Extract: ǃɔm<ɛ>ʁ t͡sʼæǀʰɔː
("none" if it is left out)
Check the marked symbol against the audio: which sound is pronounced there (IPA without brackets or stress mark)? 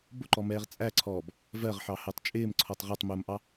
ɛː